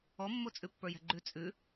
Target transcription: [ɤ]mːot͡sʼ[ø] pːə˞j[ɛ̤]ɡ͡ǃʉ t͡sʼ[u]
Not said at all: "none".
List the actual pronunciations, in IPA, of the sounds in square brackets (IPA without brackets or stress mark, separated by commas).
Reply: ɔ, ʉ, ɛ̤, ʉ